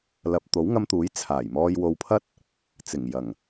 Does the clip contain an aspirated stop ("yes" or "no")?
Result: yes